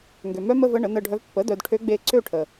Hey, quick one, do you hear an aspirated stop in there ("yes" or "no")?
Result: yes